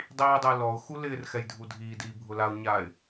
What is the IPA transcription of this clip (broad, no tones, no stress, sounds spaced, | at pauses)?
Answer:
dˤ iː dˤ ɪː l ɔ ʊ̯ x u l ɪː r x ɛ j dʱ u dʱ iː d iː bʱ ʊ l a ʊ̯ ɲ aː ɪ̯